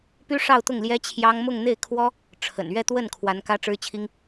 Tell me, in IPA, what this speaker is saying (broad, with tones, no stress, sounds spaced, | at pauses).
p y˥ ʂ ɑ˥˧ ʊ̯ t̪ ʊ˥˩ ŋ l j ɛ˥ t͡ɕʰ j ɑ˥ ŋ m ʊ˥˧ ŋ n̪ e˥˩ ɪ̯ kʰ w ɔ˥ | ʈ͡ʂʰ ə̰˨˩ n ɥ ɛ˥˧ t̪ w ə˥˩ n kʰ w a˧˥ n k ä˥ ʈ͡ʂ ɻ̩˥ t͡ɕʰ i˥ ŋ